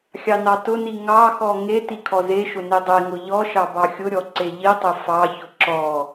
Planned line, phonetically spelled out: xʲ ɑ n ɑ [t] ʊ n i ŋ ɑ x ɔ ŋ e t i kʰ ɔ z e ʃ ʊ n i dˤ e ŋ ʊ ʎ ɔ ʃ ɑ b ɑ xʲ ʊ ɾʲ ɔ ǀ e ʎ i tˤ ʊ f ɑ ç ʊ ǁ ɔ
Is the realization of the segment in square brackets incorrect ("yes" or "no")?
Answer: no